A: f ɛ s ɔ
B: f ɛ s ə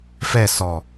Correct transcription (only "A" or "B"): A